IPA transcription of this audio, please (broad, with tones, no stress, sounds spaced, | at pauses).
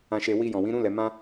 ã˨ ʃ e˨ w i˧ j ɔ̃˨ w ĩ˨˦ ɾ ũ˦ l ɛ˧ m ã˦